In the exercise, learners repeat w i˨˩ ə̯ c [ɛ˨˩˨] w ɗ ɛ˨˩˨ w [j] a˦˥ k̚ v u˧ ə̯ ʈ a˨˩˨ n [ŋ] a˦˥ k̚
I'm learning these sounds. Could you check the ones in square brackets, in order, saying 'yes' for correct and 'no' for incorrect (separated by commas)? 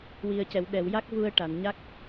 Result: yes, yes, no